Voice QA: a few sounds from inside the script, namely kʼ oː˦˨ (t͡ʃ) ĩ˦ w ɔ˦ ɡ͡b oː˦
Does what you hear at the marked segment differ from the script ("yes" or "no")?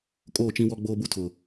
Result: no